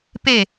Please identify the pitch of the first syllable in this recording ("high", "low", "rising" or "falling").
falling